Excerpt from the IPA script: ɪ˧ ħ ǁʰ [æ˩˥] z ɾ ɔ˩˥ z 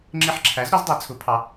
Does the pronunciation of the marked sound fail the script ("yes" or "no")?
no